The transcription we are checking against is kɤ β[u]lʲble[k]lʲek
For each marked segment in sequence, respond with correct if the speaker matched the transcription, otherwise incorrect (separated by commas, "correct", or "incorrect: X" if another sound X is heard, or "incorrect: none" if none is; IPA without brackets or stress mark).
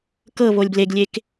incorrect: o, incorrect: ɡ